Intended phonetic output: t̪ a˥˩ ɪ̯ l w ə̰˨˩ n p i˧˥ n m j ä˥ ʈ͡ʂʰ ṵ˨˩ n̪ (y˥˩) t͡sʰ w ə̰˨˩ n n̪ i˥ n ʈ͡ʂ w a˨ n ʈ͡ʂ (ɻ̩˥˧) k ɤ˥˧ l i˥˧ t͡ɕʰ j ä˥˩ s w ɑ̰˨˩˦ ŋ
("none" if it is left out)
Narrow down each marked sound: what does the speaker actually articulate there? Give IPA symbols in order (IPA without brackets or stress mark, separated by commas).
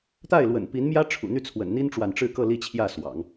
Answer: y˥˩, ɻ̩˥˧